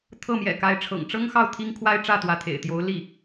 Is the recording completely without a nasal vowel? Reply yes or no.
yes